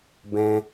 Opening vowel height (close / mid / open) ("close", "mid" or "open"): mid